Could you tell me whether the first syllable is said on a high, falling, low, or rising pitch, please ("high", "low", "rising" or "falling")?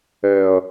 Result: low